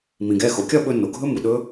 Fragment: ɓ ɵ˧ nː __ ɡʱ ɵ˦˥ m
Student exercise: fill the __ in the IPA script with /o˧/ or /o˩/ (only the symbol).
o˩